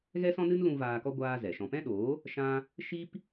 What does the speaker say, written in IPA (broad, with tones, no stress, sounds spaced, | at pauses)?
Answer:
ɣ ɛ˦ s ɔ̃˦ n ɨ˦ n l ũ˧ v aː˧ k ɔ˦ ɡʷ aː˦ z ɛ˨ ʃ ɔ̃˧ p ɛ̃˦ ɗ oː˨˦ | ʃ ã˦ | ʃ i˦ p